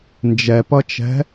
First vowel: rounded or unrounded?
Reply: unrounded